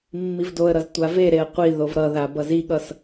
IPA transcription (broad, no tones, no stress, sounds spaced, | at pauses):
mː i v d o ə̯ ɾ ʌ z tʷ a v e ɾ e ə̯ qʷ i ð o v ɾ ʌ ð a b ʌ z i ɠ ʌ s